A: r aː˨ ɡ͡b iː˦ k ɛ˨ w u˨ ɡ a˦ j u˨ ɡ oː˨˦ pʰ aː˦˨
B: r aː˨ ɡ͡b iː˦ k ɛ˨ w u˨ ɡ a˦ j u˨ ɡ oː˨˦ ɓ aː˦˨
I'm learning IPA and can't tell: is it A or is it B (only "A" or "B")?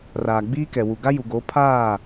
A